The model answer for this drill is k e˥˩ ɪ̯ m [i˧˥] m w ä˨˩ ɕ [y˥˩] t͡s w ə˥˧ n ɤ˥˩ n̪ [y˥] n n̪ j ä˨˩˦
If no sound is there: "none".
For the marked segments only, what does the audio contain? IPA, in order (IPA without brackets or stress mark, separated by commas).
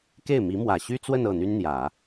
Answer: i˧˥, y˥, y˥